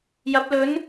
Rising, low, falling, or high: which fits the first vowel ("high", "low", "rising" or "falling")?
rising